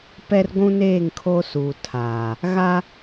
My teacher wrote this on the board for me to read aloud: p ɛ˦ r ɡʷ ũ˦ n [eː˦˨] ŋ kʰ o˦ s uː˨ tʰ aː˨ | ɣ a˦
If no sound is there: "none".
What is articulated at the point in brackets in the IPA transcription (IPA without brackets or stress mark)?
eː˦˨